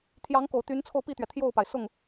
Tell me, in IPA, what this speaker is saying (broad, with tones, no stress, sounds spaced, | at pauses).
t̪ʰ j ɑ˧˥ ŋ k o˨˩ ʊ̯ t̪ y˧˥ n t͡sʰ o˧ ʊ̯ p i˥˩ t̪ ɥ ɛ˩ t̪ʰ j o˥˩ ʊ̯ p a˩ ɪ̯ s ʊ˥˩ ŋ